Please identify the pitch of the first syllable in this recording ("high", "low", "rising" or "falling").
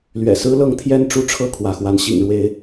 low